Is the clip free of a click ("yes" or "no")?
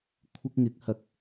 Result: yes